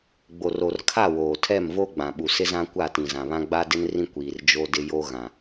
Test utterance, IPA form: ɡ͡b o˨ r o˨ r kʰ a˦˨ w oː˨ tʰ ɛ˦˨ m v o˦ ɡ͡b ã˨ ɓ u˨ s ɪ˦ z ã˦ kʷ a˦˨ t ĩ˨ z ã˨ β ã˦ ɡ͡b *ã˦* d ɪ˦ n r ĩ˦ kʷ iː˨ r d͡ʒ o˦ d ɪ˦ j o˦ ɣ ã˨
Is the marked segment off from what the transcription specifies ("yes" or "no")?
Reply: yes